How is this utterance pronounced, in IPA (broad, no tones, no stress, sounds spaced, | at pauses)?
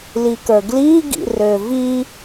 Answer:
l i k ə˞ ɡ l i ɡ ḭ r ø v i